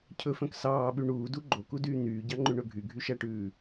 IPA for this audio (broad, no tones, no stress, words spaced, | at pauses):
cʰɵfœ̃k sɑːɓy ɳuːdu ɡ͡ǃokudyː n̪yːɟɑŋ͡ǃʉɳɵ ɡʱyɡʱyʃæʈʉː